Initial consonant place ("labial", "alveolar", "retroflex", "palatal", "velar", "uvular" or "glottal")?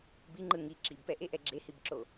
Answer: labial